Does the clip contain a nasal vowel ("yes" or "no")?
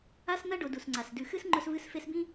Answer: yes